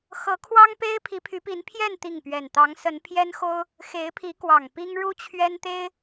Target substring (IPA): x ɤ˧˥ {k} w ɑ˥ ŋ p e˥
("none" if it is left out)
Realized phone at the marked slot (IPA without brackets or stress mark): kʰ